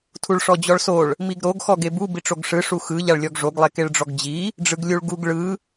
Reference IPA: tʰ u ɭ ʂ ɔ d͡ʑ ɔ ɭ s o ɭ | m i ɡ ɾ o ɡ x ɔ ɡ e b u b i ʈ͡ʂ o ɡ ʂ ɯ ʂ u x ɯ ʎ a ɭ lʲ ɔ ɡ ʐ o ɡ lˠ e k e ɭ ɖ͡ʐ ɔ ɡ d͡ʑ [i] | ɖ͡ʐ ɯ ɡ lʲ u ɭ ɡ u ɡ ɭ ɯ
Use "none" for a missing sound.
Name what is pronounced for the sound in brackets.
i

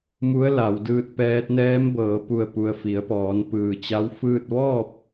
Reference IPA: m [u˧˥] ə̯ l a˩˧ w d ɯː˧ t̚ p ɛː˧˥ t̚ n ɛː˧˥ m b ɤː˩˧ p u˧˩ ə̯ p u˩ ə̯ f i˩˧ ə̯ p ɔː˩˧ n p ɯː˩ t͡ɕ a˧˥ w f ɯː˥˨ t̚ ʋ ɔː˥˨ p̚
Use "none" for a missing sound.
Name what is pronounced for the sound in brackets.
u˧˥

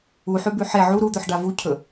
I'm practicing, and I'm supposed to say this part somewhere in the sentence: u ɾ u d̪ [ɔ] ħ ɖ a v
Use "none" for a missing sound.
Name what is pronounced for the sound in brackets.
ɵ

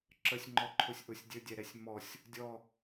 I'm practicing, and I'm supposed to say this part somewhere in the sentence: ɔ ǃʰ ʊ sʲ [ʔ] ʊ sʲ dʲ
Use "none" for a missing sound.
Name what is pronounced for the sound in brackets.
ʔ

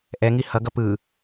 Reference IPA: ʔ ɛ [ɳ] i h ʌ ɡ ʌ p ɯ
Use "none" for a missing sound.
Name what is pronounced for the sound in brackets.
ŋ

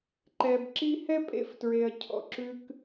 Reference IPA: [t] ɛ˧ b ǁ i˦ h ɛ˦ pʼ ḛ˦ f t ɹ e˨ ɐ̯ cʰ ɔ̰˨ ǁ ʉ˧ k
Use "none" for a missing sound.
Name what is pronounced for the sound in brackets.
ǃ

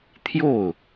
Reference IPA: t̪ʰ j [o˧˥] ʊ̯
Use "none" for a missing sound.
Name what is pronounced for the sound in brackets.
o˥˩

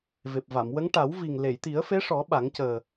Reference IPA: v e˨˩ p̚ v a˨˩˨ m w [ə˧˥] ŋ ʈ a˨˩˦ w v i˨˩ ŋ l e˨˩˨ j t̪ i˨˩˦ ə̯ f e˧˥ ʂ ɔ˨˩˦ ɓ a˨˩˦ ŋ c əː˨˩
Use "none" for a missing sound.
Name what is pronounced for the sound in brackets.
ə˧˥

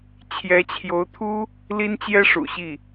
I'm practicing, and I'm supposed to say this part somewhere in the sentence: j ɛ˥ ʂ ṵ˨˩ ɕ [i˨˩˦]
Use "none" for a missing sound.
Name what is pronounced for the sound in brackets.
i˥˩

